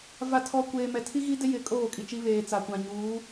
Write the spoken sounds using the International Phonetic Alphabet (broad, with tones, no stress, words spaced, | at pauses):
va˨tʰɔ˨ kʷeː˨mɛ˨ tʰi˦ɣi˦dɪ˦ jɪ˨kʼoː˦˨ kʼi˨t͡ʃi˦βeː˨ t͡sa˨kʷã˨ ɲuː˨˦